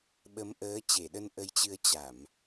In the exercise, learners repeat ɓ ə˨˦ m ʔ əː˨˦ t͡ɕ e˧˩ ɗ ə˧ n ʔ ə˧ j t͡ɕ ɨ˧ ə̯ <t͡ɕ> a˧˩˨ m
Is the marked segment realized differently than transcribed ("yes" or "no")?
no